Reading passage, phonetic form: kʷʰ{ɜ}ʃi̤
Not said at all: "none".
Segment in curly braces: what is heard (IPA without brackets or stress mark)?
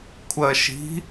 ɜ